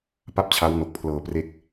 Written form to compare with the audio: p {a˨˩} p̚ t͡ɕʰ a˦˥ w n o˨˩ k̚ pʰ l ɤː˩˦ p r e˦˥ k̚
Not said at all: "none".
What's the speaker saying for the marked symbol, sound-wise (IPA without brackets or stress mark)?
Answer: a˥˩